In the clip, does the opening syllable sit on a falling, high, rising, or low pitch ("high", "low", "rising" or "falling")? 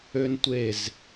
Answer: high